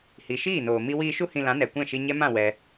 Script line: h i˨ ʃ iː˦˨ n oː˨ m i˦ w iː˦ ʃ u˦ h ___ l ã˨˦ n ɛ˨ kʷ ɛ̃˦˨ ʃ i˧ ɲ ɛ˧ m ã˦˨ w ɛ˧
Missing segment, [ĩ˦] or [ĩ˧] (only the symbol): ĩ˧